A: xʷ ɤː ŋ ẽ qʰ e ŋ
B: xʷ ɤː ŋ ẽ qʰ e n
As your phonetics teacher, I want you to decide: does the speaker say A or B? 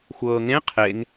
A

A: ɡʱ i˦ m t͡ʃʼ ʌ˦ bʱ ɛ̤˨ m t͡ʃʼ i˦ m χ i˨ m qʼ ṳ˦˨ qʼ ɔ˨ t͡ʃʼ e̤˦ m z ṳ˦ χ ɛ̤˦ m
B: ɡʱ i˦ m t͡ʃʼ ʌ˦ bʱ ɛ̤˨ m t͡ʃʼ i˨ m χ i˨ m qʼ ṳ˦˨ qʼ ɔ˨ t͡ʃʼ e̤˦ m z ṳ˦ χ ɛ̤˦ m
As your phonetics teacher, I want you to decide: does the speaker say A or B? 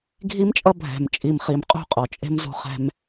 B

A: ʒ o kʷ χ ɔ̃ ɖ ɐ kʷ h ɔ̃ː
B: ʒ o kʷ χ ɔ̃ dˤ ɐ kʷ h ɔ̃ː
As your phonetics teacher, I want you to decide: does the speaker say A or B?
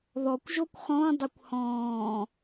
B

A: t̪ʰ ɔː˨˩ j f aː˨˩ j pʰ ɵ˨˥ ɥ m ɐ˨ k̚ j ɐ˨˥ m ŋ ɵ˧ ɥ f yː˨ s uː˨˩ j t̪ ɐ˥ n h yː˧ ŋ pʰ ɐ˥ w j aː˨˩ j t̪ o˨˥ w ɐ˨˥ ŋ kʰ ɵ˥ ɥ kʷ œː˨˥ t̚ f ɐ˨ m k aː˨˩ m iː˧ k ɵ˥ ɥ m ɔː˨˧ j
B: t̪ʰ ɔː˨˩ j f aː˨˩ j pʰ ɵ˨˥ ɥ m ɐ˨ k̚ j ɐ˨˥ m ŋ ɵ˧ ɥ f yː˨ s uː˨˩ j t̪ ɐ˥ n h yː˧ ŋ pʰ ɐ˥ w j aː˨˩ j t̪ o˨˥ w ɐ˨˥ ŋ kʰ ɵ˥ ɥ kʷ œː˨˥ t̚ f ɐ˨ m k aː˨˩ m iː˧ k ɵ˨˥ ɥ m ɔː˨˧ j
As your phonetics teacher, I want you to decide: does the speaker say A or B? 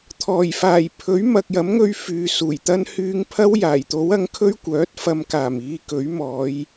B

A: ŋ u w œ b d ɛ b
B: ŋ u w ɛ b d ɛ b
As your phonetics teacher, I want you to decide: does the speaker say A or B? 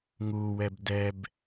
B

